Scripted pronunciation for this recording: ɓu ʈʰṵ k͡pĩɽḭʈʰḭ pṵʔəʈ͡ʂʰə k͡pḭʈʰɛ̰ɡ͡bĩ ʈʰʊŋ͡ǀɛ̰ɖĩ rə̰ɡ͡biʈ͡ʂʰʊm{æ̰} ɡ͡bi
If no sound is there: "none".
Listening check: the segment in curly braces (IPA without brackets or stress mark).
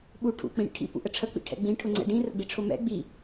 ɛ̰